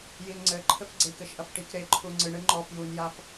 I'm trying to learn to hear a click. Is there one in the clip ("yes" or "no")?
yes